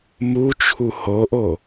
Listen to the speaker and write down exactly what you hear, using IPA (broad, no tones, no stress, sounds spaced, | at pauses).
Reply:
m u t͡ʃʰ u h o ʔ o